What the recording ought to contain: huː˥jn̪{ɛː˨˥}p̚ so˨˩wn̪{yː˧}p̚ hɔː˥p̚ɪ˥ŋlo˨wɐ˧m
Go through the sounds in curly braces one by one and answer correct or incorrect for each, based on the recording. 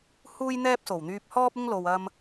incorrect, correct

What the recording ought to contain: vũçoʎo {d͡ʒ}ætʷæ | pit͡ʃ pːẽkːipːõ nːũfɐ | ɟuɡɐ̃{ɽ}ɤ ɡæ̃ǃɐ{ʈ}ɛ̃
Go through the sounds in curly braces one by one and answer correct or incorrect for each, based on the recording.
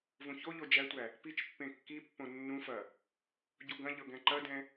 correct, incorrect, incorrect

